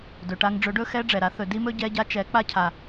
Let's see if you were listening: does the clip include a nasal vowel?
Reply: no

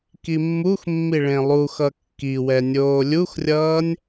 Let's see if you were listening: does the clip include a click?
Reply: no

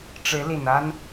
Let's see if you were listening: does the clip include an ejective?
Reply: no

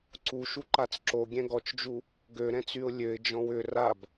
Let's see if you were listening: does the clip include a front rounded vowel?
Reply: yes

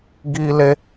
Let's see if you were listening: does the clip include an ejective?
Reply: no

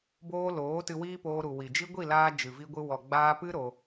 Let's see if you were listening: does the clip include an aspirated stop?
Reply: no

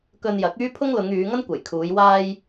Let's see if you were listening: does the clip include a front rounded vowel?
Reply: yes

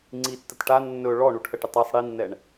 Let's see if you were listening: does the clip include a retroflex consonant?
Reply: yes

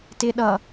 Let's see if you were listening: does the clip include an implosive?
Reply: yes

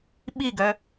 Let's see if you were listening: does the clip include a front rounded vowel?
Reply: yes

